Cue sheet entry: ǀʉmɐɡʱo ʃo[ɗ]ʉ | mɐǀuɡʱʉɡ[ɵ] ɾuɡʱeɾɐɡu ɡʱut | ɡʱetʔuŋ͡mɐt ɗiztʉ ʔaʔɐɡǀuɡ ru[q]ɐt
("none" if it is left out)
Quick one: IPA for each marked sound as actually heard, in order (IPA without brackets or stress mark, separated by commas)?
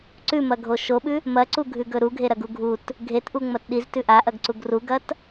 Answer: ɓ, ɵ, ɡ